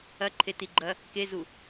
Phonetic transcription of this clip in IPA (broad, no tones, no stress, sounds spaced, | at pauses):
ɐ ǃʰ e t i ɡ͡ǃ ɐ | k e z u